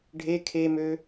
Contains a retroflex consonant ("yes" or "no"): yes